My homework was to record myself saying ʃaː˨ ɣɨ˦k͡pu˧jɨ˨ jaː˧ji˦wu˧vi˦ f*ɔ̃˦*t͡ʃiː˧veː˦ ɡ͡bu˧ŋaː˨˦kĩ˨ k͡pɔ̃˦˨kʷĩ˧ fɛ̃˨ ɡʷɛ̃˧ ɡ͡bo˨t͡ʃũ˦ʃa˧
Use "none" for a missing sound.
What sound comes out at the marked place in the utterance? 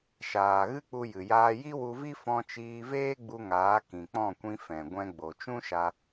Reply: ɔ̃˧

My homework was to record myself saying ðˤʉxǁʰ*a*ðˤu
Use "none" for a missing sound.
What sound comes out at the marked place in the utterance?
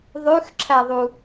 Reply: æ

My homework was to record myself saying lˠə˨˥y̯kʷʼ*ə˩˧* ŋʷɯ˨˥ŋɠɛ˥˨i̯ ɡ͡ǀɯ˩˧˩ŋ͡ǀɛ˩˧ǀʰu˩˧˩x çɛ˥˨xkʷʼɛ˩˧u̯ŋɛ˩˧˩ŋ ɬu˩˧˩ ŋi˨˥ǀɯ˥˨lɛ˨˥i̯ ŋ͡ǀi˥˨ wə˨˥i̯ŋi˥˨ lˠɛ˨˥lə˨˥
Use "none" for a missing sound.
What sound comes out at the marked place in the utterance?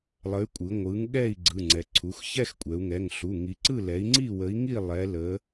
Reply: ɯ˩˧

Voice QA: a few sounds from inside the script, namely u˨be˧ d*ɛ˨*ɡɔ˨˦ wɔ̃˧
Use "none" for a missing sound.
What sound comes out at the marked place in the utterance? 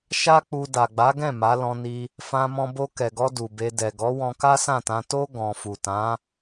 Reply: ɛ˨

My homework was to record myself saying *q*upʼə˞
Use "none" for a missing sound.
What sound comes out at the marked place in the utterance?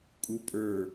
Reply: kʼ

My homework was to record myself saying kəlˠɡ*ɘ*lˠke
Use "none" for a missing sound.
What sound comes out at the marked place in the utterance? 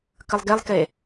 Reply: e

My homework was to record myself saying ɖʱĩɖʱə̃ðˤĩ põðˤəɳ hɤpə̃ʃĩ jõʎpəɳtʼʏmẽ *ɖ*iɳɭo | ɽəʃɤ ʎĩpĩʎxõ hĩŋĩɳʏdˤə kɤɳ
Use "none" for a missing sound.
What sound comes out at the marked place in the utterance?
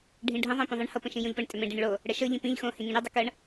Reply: ɖ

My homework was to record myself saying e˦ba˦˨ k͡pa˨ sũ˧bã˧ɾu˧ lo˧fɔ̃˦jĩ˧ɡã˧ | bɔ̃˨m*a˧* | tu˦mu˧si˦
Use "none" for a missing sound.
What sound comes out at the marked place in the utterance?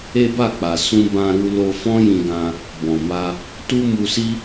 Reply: a˧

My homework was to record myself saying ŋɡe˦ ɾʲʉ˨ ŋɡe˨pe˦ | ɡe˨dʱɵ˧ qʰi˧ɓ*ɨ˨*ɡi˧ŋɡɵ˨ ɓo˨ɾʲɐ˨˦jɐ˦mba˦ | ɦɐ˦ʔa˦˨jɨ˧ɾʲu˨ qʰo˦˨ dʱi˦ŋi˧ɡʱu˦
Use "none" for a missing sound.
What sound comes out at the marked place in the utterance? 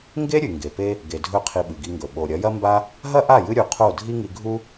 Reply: ɨ˨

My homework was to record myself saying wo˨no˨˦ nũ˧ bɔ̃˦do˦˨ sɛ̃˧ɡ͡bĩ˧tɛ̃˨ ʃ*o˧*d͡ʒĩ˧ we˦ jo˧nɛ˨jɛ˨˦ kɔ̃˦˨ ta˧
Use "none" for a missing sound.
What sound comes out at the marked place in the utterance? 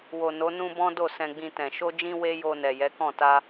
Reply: o˧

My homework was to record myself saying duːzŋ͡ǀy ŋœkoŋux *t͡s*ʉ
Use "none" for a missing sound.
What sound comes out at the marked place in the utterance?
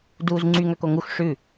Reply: ʂ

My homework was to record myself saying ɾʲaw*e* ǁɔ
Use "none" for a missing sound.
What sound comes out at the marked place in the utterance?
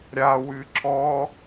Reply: ɨ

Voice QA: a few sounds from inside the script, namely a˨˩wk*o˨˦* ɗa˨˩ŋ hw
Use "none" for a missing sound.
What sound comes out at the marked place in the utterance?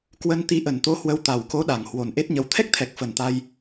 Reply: o˨˦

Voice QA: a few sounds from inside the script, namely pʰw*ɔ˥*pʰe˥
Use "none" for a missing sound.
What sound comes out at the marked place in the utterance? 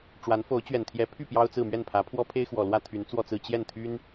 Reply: ɔ˥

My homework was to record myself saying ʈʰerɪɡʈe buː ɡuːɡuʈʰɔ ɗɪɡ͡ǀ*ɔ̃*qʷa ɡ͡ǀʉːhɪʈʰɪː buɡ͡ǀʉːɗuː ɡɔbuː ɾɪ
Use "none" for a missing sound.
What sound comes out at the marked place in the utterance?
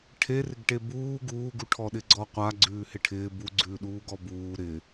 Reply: ɔ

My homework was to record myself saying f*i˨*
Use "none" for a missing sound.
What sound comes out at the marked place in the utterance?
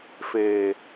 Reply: e˨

